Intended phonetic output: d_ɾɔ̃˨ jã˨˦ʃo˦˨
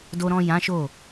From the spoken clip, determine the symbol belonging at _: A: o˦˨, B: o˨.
B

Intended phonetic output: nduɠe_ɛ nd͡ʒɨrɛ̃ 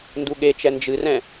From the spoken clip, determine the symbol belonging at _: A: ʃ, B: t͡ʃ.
B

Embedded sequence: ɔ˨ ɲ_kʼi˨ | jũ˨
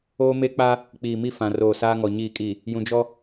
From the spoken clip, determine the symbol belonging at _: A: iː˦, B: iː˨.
B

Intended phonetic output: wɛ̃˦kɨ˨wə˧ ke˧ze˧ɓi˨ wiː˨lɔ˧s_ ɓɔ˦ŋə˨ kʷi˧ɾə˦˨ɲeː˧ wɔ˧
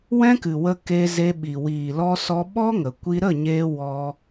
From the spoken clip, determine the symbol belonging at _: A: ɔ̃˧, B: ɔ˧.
B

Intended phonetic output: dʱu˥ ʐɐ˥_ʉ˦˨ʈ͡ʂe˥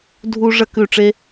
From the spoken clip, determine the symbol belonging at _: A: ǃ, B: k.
B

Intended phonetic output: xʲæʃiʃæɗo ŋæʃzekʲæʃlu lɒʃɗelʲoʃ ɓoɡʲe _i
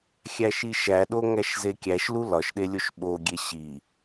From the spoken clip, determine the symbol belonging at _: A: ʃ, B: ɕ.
B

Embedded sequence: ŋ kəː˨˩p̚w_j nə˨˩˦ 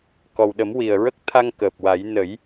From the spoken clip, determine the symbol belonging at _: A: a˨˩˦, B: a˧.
A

